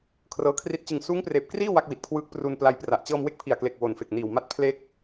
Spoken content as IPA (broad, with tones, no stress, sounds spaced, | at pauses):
kʰ r ɤː˦˥ kʰ r i˥˩ t̚ t͡ɕ ɯ˨˩ ŋ s uː˦˥ ŋ p r eː˨˩ p̚ k r iː˥˩ w a˥˩ k̚ w i˨˩ t̚ kʰ w ɯː˦˥ k̚ p r u˧ n p l a˧ j p r a˨˩ ʔ t͡ɕ ɤː˧ m w e˦˥ k̚ pʰ i˨˩ a̯ k l e˨˩ k̚ w o˨˩ n f e˨˩ k̚ n iː˨˩ w m a˦˥ t̚ pʰ l e˥˩ k̚